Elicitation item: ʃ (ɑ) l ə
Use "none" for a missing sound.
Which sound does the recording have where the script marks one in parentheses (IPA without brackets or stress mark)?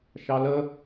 ɑ